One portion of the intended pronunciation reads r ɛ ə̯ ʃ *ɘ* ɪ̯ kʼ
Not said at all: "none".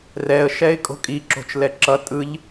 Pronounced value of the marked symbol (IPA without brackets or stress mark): ɛ